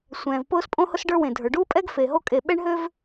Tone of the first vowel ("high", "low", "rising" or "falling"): low